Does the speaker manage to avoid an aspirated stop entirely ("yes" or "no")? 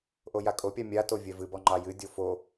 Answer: yes